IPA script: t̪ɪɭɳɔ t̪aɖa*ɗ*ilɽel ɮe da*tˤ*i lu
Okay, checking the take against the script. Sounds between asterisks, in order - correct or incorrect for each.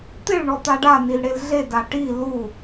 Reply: incorrect: n, incorrect: ʈ

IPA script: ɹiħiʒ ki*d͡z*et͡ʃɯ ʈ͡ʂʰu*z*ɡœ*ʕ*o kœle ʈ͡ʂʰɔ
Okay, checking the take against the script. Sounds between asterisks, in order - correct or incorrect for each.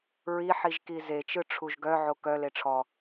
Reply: incorrect: z, incorrect: ʒ, correct

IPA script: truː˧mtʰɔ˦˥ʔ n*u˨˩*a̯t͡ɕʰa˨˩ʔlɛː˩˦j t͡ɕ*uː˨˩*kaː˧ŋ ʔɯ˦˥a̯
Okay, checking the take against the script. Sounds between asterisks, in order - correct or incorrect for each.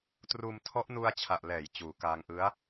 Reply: incorrect: u˧, correct

